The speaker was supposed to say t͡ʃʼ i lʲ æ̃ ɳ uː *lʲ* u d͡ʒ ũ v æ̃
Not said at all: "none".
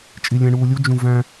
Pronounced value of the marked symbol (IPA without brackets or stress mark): lʲ